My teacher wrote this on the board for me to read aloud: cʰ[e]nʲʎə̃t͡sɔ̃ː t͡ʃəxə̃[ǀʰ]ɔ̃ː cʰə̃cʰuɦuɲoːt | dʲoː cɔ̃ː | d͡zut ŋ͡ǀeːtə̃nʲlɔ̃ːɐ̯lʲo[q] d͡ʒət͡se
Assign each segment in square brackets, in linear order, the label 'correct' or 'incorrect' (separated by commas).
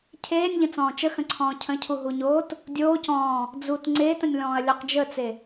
incorrect, correct, correct